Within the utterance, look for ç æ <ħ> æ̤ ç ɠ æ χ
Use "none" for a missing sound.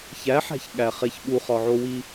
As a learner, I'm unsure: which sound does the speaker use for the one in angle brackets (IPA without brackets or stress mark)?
ħ